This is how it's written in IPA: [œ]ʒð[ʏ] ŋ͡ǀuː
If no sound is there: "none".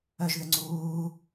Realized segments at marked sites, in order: œ, ʏ

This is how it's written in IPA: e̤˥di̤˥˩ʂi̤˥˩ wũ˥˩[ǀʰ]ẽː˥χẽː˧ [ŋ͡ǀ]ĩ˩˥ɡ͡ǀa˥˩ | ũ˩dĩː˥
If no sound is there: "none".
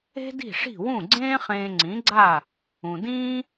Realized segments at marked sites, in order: ɡ͡ǀ, ŋ͡ǀ

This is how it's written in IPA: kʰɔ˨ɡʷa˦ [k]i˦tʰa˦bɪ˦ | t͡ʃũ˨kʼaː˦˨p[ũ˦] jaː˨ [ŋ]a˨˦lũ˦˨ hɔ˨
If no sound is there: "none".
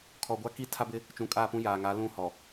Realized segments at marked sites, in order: k, ũ˦, ŋ

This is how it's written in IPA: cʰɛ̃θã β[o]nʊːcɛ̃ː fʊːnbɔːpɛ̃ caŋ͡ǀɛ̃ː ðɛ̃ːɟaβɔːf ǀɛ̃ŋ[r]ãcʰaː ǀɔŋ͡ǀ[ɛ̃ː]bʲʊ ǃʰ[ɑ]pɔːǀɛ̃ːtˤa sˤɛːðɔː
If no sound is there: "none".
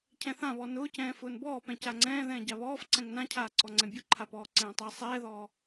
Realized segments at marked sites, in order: ɔ, n, ɛ̃, a

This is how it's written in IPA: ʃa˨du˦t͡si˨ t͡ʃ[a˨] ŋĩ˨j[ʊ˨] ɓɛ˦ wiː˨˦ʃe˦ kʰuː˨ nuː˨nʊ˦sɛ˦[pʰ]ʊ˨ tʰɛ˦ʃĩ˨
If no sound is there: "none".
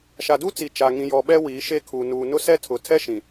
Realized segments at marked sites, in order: a˨, ɔ˨, tʰ

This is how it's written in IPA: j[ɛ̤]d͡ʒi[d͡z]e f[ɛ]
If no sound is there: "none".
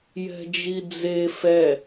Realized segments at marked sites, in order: ɛ̤, d͡z, ɛ

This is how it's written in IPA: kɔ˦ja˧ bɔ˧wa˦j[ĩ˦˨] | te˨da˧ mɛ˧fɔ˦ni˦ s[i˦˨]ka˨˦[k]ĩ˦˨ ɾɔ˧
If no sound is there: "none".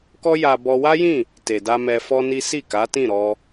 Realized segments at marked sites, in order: ĩ˦˨, i˦˨, t

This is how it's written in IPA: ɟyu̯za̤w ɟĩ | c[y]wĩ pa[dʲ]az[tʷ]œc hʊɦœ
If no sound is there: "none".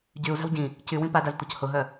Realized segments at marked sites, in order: y, d, tʷ

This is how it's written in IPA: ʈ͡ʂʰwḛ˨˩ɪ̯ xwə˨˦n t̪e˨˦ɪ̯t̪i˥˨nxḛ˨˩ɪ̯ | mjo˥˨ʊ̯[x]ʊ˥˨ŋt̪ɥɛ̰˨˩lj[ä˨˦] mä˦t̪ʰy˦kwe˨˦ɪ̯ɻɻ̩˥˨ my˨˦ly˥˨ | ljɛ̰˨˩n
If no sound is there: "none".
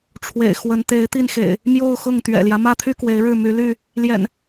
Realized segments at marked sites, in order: x, ä˦

